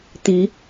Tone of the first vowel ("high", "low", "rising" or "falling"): rising